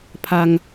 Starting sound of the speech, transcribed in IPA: pʰ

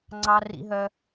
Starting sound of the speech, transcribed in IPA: ŋ͡ǀ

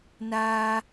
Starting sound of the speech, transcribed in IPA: n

